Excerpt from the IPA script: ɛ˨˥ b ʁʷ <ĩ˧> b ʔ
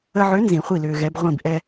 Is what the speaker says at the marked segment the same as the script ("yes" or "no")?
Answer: no